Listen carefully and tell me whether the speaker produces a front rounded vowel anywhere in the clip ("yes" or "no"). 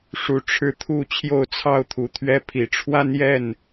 no